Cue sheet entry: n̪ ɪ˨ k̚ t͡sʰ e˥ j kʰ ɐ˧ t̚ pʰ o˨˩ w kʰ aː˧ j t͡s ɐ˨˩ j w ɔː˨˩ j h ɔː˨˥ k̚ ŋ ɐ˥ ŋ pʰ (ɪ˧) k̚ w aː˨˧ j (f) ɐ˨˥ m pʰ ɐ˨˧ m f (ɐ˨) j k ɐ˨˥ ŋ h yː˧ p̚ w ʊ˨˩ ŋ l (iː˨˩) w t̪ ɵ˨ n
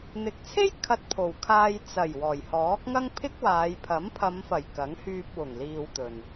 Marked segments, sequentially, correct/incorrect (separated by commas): incorrect, incorrect, incorrect, incorrect